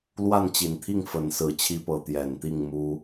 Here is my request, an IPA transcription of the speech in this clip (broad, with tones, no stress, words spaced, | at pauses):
lwa˥˨nt͡ɕi˨˩nt̪ʰi˥˨ŋ fə˨˦nsɹ̩˨˦ t͡ɕʰi˦pɤ˨˦ t̪jɛ˨˩nt̪i˥˨ŋ mu˦